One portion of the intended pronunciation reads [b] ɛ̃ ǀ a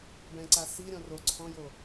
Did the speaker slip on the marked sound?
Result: no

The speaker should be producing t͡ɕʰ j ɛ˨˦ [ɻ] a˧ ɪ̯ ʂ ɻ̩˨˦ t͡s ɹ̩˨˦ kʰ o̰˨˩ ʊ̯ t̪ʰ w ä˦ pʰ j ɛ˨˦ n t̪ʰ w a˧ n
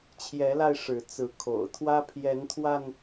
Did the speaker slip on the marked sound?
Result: yes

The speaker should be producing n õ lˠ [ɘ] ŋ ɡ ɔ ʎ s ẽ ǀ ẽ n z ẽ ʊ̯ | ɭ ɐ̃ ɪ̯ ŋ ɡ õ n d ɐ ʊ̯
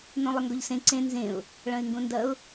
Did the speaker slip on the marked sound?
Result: no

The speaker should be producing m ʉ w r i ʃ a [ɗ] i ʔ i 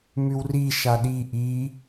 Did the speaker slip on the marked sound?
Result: no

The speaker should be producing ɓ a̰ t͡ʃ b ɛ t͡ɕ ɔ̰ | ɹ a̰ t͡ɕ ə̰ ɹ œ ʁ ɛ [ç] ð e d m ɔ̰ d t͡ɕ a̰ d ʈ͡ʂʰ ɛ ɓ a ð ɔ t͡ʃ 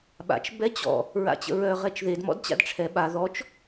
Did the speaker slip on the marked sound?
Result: yes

